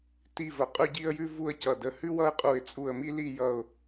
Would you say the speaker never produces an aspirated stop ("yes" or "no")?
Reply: yes